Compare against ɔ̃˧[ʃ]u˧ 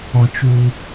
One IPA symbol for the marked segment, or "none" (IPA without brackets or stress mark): t͡ʃ